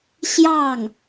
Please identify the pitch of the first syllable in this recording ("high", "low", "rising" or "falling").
falling